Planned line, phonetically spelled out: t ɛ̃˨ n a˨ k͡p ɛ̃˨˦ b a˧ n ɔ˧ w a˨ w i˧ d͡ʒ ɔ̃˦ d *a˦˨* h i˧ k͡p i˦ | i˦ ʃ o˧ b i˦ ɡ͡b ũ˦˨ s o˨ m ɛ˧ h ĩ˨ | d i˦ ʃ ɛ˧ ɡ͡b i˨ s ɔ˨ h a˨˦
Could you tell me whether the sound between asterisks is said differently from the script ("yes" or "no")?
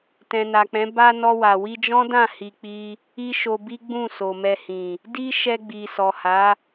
yes